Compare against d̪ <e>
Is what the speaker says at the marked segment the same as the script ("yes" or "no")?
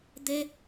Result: yes